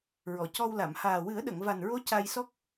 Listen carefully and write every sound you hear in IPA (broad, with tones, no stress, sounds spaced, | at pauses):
ɹ ɔ˨˩˨ c ɔ˧ w l a˨˩˨ m h aː˨˩ w ɨ˨˩˦ ə̯ ɗ ə˨˩˨ ŋ v a˨˩ n ɹ o˧˥ c a˧ j s ɔ˦˥ k̚